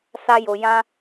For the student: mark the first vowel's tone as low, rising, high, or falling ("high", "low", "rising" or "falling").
high